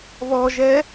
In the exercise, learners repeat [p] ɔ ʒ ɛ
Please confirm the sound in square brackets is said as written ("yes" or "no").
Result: no